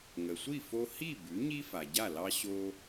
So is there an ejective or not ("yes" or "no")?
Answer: no